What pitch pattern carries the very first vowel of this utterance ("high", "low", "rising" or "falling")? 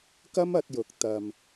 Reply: high